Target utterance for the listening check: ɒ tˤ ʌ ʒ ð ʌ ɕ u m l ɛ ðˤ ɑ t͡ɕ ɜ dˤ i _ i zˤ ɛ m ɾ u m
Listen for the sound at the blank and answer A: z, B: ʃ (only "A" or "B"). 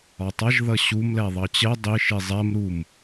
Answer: B